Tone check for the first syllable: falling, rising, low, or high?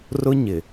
high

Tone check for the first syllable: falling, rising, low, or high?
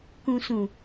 low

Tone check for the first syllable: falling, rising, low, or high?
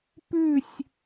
falling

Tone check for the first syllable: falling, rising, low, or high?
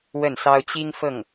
falling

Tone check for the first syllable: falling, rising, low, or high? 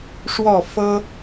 falling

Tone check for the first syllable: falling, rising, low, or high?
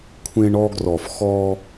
high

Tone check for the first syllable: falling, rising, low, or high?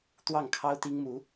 falling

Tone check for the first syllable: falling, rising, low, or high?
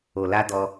low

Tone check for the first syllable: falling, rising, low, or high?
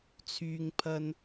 low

